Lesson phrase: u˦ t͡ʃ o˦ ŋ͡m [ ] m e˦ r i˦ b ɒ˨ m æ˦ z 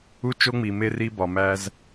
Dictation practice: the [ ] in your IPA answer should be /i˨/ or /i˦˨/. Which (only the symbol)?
i˨